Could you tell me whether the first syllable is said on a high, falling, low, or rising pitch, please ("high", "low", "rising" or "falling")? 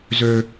low